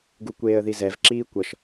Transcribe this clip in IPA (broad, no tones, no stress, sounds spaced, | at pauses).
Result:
ɡ u kʷ eː ə̯ ð i z ɛ v ǁ iː kʷ ʌ ʃ